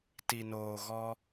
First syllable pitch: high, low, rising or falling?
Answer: low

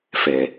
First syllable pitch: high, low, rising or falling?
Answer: low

